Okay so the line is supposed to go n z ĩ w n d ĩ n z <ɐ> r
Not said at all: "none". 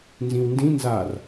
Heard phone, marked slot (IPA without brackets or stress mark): a